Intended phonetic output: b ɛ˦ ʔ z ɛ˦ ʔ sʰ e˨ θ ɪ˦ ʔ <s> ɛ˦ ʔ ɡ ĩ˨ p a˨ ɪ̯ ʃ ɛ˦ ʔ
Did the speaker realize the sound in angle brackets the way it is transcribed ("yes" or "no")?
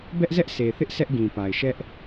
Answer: yes